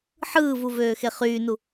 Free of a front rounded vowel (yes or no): no